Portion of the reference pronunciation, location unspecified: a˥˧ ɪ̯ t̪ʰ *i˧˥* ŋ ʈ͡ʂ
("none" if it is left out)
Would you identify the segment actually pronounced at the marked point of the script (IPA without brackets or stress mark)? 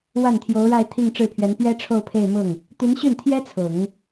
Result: i˥˧